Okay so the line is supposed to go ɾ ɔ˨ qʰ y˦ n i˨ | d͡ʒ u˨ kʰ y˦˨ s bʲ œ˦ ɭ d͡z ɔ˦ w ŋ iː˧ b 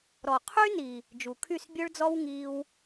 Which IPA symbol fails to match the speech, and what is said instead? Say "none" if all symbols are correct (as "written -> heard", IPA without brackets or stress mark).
b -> w